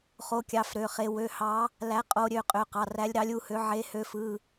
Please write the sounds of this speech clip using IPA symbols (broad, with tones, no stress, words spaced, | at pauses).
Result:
χo˨˦kʲɑ˩˧˩f ɾø˩˧˩χe˨˦ wø˩˧˩ hɑ˨˦ | læ˨˦ qʼo˨˦ ɾʲø˩˧˩qʼø˩˧˩qɑ˩˧˩r æ˨˦lʲɾɑ˨˦lʲu˩˧˩hø˨˦ ʕe˨˦hø˨˦fɯ˩˧˩